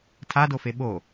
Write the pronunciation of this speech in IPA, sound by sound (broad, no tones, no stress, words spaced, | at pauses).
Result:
tʰadofe ɓo